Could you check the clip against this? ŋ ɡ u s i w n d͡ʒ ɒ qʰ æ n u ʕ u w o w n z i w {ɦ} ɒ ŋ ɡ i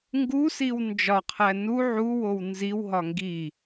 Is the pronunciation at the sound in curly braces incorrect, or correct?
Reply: correct